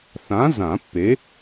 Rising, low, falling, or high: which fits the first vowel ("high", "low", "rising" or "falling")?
rising